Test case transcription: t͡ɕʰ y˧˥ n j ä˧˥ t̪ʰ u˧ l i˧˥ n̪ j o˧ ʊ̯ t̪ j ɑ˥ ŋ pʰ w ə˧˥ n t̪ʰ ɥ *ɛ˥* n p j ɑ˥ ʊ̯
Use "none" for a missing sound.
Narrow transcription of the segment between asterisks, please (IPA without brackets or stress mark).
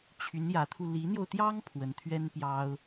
ɛ˥